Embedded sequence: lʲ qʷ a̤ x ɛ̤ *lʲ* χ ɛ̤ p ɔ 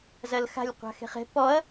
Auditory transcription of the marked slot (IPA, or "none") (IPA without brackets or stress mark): none